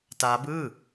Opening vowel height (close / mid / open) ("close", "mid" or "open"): open